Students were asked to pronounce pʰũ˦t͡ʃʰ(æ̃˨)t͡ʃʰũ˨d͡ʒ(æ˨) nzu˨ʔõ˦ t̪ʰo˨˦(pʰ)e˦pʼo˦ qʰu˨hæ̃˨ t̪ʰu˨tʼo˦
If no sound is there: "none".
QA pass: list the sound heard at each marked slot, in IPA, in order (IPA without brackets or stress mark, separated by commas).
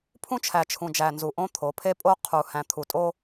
æ˨, æ˨, pʰ